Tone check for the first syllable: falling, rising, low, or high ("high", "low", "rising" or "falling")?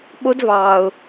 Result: high